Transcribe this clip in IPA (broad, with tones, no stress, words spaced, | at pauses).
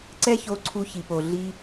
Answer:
ǀɛ˦ço˧ǀʰu˧ çi˨po˨ ɮi˦